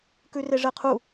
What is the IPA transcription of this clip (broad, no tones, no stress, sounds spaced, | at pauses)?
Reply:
k ʉ r e ʐ ɛ qʰ u